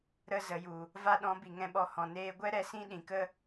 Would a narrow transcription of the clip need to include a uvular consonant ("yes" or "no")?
no